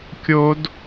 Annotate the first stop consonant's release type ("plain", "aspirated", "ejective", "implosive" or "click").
plain